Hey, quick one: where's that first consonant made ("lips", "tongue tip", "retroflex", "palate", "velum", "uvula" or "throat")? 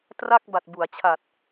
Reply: tongue tip